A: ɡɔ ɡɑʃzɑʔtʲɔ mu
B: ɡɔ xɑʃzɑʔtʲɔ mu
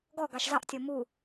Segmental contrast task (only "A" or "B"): A